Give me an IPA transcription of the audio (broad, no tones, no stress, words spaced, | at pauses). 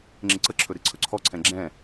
ŋ͡ǁɪǀəǁʰɵ ɾeǀʰɵǀʰɔǀʰɛ̃ ɡ͡ǁɛ̃